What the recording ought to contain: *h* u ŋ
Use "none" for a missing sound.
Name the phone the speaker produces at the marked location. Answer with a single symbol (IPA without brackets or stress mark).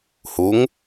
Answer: h